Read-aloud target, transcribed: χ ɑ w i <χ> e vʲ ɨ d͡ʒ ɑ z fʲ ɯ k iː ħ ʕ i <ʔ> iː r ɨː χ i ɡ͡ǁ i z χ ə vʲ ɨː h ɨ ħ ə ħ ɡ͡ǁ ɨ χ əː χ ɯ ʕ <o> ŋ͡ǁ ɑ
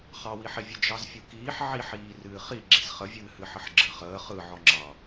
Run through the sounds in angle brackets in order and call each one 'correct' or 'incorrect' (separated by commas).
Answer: incorrect, incorrect, incorrect